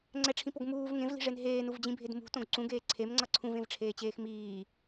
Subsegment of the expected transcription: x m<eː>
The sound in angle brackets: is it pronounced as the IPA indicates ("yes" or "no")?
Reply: no